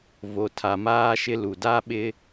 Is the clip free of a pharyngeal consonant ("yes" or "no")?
yes